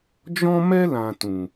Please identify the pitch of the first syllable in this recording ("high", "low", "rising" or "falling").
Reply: high